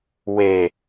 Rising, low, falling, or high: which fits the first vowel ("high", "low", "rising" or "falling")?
low